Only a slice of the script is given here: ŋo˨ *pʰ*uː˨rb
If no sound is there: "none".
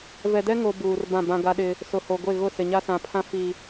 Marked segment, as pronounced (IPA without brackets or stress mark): b